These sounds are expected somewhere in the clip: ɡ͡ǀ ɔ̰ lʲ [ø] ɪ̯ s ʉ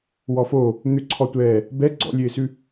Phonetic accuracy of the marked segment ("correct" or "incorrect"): correct